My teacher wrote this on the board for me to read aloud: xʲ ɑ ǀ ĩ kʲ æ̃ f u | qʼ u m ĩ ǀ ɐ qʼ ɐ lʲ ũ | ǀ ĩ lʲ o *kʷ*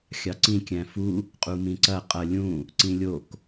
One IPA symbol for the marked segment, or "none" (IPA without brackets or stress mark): k